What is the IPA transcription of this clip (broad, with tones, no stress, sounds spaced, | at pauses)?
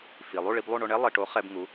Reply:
f i˩ lˠ u˥˩ ɭ i˧ b lˠ u˥˩ ɳ o˧ ɳ ɛ˥ lˠ i˩ ʈ o˩˥ χ ɛ˧ b ŋ u˩˥